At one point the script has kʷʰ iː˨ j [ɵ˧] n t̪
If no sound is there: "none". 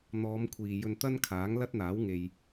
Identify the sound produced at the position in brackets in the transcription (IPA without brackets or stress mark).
ɵ˧